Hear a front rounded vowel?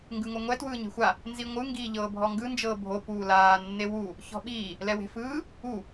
no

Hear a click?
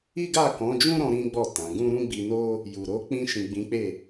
no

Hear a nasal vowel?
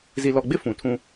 yes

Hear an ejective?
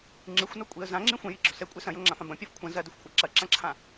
yes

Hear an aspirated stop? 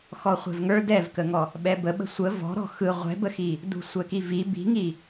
no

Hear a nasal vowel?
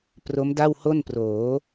no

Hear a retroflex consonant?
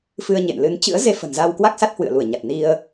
no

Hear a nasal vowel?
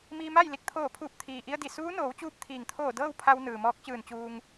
no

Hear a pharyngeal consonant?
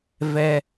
no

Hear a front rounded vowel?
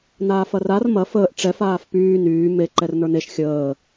yes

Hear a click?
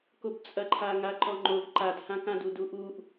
yes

